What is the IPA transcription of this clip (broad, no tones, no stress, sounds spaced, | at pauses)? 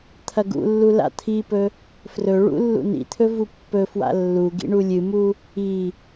t̪ʰ ɐ ɡ ṵ lː u l a̰ t̪ʰ i p ɵ | f r ɵ ɭ ṵ lː ṵ n ḭ t̪ʰ ɵ v u pː ɵ f w a̰ lː u ɡ ḭ ɳ u lʲ ɨ m u | i